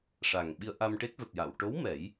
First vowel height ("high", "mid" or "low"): low